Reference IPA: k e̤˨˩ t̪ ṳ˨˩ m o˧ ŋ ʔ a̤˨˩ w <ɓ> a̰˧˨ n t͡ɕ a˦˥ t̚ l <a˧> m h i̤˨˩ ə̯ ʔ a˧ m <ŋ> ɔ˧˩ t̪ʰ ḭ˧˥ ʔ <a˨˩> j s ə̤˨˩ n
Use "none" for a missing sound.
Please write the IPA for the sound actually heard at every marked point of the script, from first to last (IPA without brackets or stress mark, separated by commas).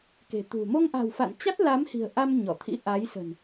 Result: f, a˨˦, ɲ, a˨˦